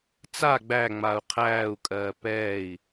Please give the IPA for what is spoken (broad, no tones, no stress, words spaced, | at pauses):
t͡sa ɡ͡bæŋ͡mau̯ qʰæːu̯kʼɜː pɛːi̯